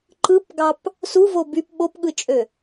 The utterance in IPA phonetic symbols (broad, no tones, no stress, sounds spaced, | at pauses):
ǃ ɯ p ɡ ɑ p | s u v o b y p ɓ o p ɠ ɯ t͡ʃʼ ø